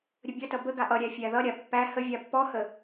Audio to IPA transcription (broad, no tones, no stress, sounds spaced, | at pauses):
ɾʲ ə bʲ ʌ t ʌ b ə ɡ a ʔ ʌ ɾʲ æ fʲ æ ð ʌ ɾʲ a pː æ h ə vʲ a pː ɔ h ə